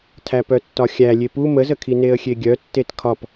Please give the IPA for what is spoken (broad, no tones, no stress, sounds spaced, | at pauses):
tʰ æ p œ tː ɒ xʲ æ lʲ e p u m ə z ə kʰ i n e ə̯ xʲ e ɡʲ œ tː e t kʰ ɒ p